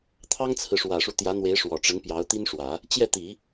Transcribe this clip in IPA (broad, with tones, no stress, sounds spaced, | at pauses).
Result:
t̪ʰ ɑ˥ ŋ t͡sʰ ɹ̩˨ ʂ w ä˨˩ ʂ u˦ t̪ j ä˧˥ n̪ w e˧˥ ɪ̯ ʂ w ɔ˨˩ ʈ͡ʂ ə˧˥ n p j ɑ˧˥ ʊ̯ t̪ i˥ n ʂ w ä˨˩˦ | t͡ɕ j ɛ˥˩ t̪ i˨˩˦